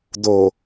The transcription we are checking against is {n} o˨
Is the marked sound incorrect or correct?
incorrect